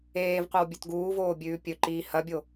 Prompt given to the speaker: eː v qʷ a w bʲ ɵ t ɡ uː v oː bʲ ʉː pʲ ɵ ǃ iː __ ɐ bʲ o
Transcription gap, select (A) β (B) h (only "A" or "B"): B